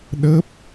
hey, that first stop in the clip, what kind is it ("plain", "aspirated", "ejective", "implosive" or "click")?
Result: implosive